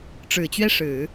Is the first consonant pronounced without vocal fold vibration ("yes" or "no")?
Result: yes